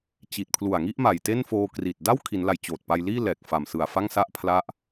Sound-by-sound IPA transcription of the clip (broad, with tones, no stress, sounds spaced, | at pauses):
t͡ɕ i˨˩ t̚ pʰ l u˨˩ a̯ ŋ i˥˩ ʔ m a˨˩ j t e˥˩ n f oː˧ k r i˨˩ t̚ d a˥˩ w kʰ i˩˦ n l a˨˩ j t͡ɕ oː˨˩ t̚ p a˧ j l iː˥˩ l ɛː˨˩ k̚ f a˨˩ m s ɯ˨˩ a̯ f a˥˩ ŋ s a˥˩ ʔ pʰ l a˦˥ ʔ